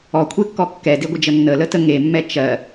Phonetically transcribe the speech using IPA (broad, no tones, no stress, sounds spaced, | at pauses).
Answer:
ɔ kʷʰ e kː ɔ kː ɛ d e ɡʷ ə d͡ʒ ə nː ə l ə t ə ŋ e mː ɛ t͡ʃ ɜ